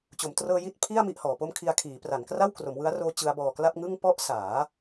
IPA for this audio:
t͡ɕ o˩˦ m t r ɤː˧ j i˥˩ t̚ pʰ i˥˩ a̯ m i˥˩ ʔ h ɔː˩˦ p o˥˩ m kʰ i˧ a̯ kʰ iː˩˦ p r a˩˦ n k r a˥˩ w k r o˩˦ m w ɯ˦˥ a̯ r oː˦˥ t͡ɕ ɯ˦˥ a̯ b ɔː˧ k l a˥˩ p̚ ŋ ɯ˥˩ ŋ p ɔ˥˩ ʔ s aː˩˦

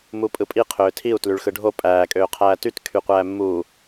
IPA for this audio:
m u pʼ ɯ pʼ i qʰ øː tʰ i u̯ t l y ɭ x ɯ ɖʱ o pʼ æː kʼ øː qʰ æː t y t kʰ y qʷ æː mː uː

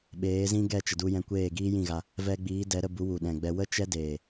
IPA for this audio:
ɓ eː˨˦ z ĩ˦ ɡ ɛ˦˨ t͡ʃ ə˨ d u˧ j ɛ̃˧ kʷ eː˦˨ ɡ iː˦ j ĩ˦˨ ɣ a˧ | v ɛ˧ ɡ͡b iː˨˦ d ɛ˨˦ ɾ ə˧ b u˨˦ w u˨ ɗ ɛ̃˨ ɡ͡b ɛ˧ w ə˦ t͡ʃ ɛ˦ d eː˨

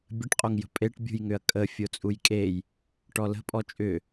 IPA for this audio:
bʲ ə ʈ qʼ o ŋ j ə̤ pʼ e ʈ bʲ ṳ j ŋ ʏ ɐ̯ kʼ ə fʲ o t͡sʼ u j kʼ e j | ʈ ɔ l ə̤ pʼ ɔ t͡ʃʼ ʏ

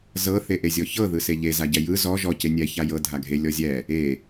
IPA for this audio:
z ɤ θ e ʔ e zʲ ɔ ç ɤ ð ɯ s e ʎ e z a ɟ ɛ j ɯ z ɔ ʒ ɔ c e nʲ ɛ ç a j ɤ dʱ a ɡʱ e lʲ ɔ zʲ ɛ | e

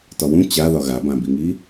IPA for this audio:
t ɒ w ũ t͡ɕ a ð ɒ ɣ a b ã b i ŋ i

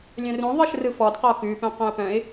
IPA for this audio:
lʲ œ̃ r ũ ðˤ ɯ ʃ r ɯ f ɔ d q ɔ k ʉ p œ̃ q œ̃ ʊ̯ p œ̃ ɪ̯

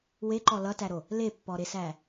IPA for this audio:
w e ǃ ɔ l ʌ t æ ɾ o | l e pː ɔ ɾ e s æ

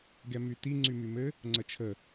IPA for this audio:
ɡ ɛ m y t i ŋ͡ǀ y m y m ɘ | ŋ͡ǀ ə t͡ʃʰ ə

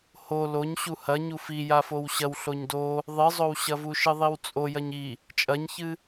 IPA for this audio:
h o l o ɲ ɕ u h ɐ ɲ u f i j a f o w ɕ ɐ w ɬ o ɲ d o | ðˤ ɨ zˤ o w ɕ ɐ v u ʃ ɨ ðˤ i w t͡sʼ o j ɐ ɲ i | t͡ʃʼ ɐ ɲ ç ɨ

